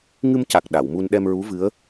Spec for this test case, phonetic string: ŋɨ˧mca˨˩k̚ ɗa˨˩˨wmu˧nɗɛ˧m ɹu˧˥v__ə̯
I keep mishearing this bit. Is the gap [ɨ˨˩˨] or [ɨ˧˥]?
ɨ˧˥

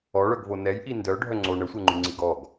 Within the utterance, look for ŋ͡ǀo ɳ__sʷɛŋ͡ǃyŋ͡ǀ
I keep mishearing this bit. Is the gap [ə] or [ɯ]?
ə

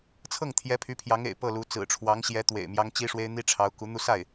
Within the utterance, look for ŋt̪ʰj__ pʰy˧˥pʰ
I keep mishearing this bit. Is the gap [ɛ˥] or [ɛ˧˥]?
ɛ˧˥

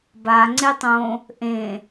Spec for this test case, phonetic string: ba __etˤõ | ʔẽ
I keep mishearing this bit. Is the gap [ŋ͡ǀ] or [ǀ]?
ŋ͡ǀ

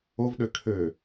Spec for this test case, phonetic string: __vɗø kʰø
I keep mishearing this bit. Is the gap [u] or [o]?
o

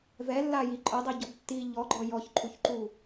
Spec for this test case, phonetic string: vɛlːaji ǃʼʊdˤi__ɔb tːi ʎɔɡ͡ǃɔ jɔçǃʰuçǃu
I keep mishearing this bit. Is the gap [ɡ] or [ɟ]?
ɟ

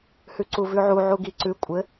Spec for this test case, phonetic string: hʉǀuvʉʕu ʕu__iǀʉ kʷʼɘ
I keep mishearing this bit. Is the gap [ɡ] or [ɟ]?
ɡ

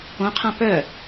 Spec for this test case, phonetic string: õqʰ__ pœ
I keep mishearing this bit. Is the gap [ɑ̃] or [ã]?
ã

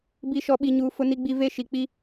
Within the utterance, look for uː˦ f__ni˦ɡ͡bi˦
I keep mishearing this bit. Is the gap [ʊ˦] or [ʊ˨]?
ʊ˦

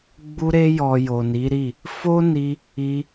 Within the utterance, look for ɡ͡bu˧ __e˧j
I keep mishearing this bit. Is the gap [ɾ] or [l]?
ɾ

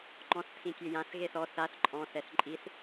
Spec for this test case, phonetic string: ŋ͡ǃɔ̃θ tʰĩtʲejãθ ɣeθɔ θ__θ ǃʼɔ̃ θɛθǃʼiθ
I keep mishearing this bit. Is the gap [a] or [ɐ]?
a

